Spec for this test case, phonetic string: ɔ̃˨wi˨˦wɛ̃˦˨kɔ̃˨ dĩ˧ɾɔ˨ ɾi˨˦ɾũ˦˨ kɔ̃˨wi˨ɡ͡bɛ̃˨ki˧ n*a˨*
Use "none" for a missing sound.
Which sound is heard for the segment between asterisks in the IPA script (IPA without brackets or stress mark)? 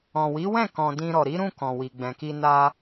a˧